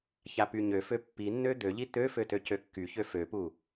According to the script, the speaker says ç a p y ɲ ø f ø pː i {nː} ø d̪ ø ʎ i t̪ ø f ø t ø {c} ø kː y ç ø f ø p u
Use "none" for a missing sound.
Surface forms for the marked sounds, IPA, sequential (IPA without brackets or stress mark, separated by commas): nː, c